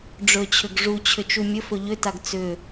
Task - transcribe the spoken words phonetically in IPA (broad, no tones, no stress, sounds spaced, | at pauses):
ɖ͡ʐ ɵ t͡ɕʰ ʏ ɡ ʐ u t͡ɕʰ ʏ t͡ʃ u mʲ ə f ɵ ʎ ʏ t a ɡ t͡s ʏ